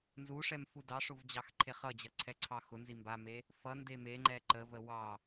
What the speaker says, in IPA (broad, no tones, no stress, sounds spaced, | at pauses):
n z u ʂ ɛ m f u d ɑ ʂ ʊ v d͡ʑ ɑ x ǃʰ e χ ʌ d͡ʑ ʌ ǀʰ ɛ ǀʰ ɑ x ʊ n z i m b a m e | f ʌ n d e m e ŋ͡ǃ ɛ ǃ ə v ə w ɑ